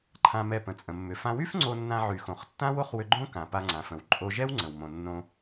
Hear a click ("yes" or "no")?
yes